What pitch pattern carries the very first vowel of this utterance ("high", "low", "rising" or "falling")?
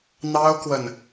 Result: high